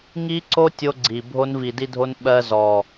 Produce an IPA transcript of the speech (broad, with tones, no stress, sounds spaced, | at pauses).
ŋ i˦ ǀ o˦ tʲ o˦ ɡ͡ǀ i˨ bʱ o˦ n v i˨ d i˦ dʱ o˦ n ɓ ɜ˦ z ɔ˨